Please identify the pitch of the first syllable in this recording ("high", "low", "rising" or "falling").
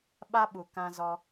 high